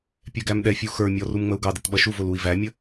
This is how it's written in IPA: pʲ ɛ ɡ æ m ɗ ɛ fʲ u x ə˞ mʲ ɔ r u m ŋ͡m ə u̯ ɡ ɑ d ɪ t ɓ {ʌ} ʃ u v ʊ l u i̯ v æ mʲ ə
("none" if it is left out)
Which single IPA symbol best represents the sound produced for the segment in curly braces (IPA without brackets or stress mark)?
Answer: ʌ